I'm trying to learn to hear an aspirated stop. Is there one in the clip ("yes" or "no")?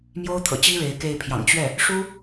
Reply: yes